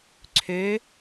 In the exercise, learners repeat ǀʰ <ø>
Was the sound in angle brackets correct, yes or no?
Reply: yes